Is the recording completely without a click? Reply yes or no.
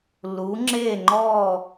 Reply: no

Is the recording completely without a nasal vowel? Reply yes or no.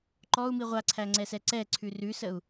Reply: yes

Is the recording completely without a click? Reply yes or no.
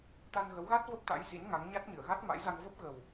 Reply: yes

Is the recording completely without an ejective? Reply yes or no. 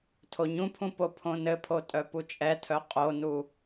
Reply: no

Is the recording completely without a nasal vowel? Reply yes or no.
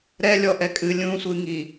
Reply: no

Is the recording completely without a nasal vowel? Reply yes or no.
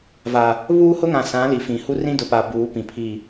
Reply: no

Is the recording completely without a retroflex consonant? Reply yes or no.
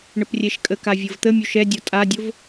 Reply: no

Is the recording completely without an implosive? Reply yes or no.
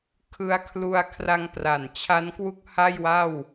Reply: yes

